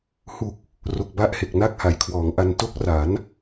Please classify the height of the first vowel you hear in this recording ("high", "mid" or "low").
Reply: high